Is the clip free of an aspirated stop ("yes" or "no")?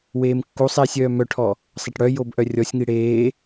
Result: no